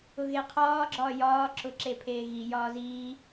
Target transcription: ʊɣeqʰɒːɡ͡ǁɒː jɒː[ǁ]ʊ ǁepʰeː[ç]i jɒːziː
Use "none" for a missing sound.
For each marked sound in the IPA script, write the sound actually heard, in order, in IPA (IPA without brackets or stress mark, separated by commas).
ǁ, ɣ